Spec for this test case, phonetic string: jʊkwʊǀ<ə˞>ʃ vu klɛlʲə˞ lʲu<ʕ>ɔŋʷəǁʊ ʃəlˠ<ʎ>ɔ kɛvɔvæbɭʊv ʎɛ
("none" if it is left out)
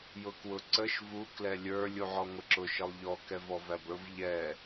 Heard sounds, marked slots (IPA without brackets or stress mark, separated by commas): ə, ʕ, ʎ